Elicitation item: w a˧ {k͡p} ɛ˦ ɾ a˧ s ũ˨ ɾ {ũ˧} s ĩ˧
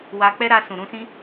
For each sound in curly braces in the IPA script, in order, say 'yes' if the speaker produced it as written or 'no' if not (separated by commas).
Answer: yes, yes